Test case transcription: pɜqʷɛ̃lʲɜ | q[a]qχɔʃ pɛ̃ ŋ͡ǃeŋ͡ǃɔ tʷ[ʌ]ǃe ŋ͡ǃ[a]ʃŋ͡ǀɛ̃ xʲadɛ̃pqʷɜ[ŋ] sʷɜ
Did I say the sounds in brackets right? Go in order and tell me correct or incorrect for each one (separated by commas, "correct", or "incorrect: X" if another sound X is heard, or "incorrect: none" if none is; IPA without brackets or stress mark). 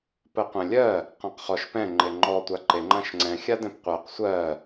incorrect: ã, incorrect: a, incorrect: ã, incorrect: q